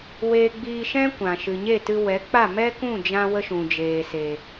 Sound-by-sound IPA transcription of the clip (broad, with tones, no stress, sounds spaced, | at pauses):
w eː˧ ɡ͡b iː˧ ʃ ɛ̃˦ kʷ ã˨ ʃ ɨ˨ ɲ e˦˨ t ɨ˧ w ɛ˨˦ k͡p a˦˨ m ɛ˦ k ũ˦˨ d͡ʒ ã˧ w ə˧ ʃ ũ˨ d͡ʒ eː˨ s e˨